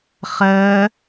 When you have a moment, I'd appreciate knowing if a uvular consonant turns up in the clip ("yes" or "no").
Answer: yes